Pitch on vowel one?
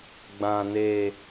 low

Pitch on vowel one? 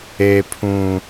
high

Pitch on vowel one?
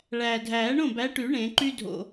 low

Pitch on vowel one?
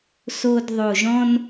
low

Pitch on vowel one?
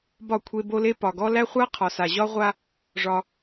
falling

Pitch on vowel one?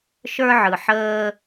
high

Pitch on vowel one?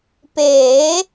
rising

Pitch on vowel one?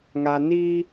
low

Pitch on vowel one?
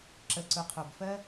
low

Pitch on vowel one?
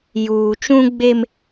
low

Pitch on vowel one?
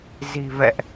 low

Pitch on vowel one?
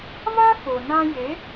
high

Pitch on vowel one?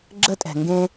high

